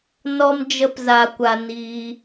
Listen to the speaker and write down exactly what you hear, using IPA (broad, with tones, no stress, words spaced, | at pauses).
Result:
nɔ˦md͡ʒə˦pza˧kʷa˧ niː˦